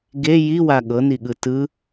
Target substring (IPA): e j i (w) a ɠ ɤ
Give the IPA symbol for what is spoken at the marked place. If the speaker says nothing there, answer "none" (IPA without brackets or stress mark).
w